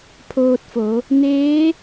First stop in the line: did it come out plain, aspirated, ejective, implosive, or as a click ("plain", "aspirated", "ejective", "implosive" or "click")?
aspirated